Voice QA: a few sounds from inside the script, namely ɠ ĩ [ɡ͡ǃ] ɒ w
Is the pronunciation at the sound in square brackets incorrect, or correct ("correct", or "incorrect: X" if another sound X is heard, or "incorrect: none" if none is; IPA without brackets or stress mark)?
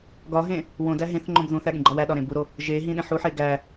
correct